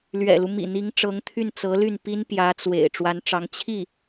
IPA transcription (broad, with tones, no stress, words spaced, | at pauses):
lɥɛ̰˨˩lu˦ mḭ˨˩n̪i˧˥ŋʈ͡ʂɤ˧˥ŋ t̪ʰy˥˩nt͡sɤ˧˥ly˥˩n pi˥n pjä˧˥ t͡swḛ˨˩ɪ̯ ʈ͡ʂwa˧˥nʈ͡ʂɑ˧˥ŋ t͡ɕʰi˥˩